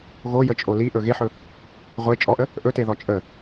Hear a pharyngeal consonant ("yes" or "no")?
yes